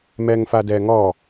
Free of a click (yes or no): yes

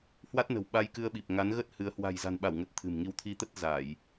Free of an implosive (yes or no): no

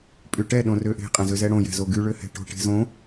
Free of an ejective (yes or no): no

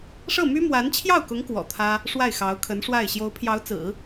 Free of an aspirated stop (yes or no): no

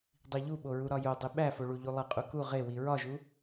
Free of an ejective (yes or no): no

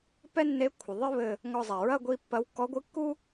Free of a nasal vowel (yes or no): yes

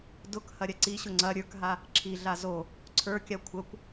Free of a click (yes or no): no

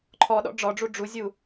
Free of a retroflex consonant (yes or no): no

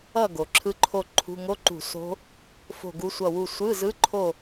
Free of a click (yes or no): no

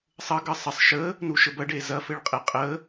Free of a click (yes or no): yes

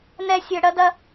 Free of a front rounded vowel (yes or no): no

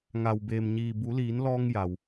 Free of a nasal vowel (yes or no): yes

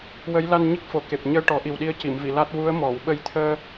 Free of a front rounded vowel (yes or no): yes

